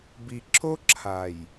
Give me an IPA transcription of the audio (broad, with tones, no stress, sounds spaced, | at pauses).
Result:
b i˨ ǁ o˦ ǁʰ a˨ j